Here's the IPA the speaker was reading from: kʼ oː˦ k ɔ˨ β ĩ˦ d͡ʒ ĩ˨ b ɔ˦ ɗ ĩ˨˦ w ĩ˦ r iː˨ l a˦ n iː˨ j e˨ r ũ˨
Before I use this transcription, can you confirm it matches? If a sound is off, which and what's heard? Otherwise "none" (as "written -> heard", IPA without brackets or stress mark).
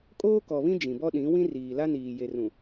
none